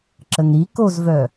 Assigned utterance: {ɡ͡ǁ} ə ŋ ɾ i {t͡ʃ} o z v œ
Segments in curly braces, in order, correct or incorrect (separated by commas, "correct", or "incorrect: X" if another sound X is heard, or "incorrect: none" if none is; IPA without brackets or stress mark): incorrect: ǁ, incorrect: k